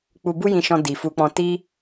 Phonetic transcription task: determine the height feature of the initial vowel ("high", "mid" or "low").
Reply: high